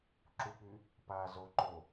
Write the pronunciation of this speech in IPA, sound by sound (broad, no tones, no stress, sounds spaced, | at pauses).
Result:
ǁ u k͡p y | p aː z o ǃ o